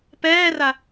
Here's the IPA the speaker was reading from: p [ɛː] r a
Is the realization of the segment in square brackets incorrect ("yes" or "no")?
no